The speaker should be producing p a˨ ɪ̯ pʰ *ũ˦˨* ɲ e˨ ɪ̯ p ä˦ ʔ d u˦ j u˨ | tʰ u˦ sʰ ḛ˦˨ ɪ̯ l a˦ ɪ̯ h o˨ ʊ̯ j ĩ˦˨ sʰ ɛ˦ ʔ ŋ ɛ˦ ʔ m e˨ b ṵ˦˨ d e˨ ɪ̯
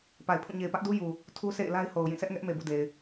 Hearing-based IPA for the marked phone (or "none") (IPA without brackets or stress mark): ũ˦˨